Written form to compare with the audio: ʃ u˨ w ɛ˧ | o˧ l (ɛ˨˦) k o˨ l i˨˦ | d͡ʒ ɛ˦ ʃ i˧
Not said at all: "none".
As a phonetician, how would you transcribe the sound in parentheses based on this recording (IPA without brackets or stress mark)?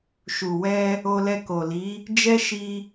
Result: ɛ˧